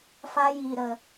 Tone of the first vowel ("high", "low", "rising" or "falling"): high